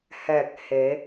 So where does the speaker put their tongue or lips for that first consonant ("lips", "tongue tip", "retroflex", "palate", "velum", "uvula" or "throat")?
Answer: throat